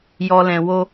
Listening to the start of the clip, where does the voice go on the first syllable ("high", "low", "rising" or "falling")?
low